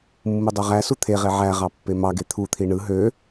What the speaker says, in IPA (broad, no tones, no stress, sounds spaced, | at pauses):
mː ɯ dˤ o ʁ æ s u t̪ʰ e ʁ e ʕ æ ʁ ɑ pː e m ɑ ɡ e t̪ʰ u t̪ʰ i ɳ ɯ ɦ ø